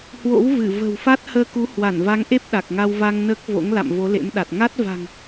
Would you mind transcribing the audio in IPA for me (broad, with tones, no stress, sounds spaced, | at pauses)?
h w o̰˧˥ w v ɨ˧˩ v ə̤˨˩ w f a˦˥ t̚ h əː˧ k u˨˦ h w a˧˩ n v a˨˦ ŋ ʔ e˦˥ p̚ ɗ a˨˩ k̚ ŋ a˧ w v a˧ ŋ n əː˦˥ k̚ v o̰˧˥ ŋ l a̰˧˨ m v o˨˦ l ḛ˧˥ m ɗ a˨˩ t̚ ŋ a˦˥ t̚ v a̤˨˩ ŋ